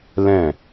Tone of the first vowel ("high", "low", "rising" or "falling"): falling